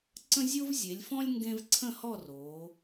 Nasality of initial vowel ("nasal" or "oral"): nasal